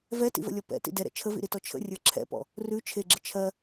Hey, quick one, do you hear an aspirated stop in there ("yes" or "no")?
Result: yes